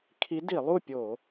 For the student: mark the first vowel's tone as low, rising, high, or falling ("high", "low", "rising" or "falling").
rising